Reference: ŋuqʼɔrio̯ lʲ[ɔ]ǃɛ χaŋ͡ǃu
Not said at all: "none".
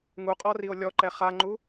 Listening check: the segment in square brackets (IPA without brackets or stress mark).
ɔ